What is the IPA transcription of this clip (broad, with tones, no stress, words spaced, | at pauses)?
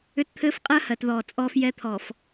ʏ˦tt̪ʰɘː˦fqʼɜ˦ hɜ˨tðɔː˨ t͡sʼɔː˦fjɛ˦t̪ʰɔ˨f